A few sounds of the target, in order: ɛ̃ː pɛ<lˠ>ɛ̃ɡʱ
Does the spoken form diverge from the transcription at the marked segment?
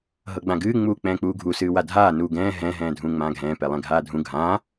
no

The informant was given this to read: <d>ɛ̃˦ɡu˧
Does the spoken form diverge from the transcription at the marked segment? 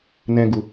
yes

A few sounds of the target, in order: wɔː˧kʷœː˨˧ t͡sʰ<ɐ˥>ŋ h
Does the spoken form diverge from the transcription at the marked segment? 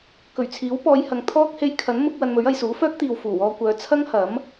no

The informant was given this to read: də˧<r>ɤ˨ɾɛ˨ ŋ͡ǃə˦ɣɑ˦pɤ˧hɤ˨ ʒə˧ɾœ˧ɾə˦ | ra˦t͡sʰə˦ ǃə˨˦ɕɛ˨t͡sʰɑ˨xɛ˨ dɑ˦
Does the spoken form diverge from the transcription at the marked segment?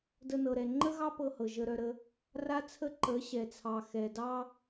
yes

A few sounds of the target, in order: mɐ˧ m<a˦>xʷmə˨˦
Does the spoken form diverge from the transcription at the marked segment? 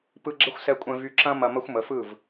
yes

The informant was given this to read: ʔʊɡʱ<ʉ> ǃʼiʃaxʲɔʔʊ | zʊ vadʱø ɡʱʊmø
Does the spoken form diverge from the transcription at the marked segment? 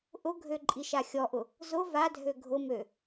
yes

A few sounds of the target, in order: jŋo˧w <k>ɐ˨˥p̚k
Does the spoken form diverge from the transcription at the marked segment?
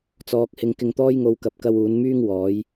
no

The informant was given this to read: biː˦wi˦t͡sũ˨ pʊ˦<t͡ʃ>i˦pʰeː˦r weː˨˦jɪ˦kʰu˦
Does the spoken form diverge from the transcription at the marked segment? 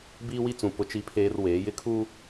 no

